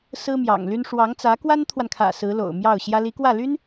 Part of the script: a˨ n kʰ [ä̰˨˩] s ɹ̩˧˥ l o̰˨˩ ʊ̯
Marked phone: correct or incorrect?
correct